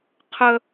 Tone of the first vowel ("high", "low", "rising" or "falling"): high